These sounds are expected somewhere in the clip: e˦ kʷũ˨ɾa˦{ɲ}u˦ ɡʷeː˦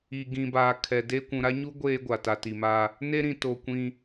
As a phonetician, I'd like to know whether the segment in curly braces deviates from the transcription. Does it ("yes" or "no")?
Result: no